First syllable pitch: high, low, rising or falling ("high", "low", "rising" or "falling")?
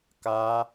high